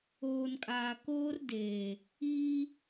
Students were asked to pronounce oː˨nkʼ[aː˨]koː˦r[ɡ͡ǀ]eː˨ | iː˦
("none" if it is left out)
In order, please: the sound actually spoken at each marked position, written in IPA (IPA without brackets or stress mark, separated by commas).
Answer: aː˨, d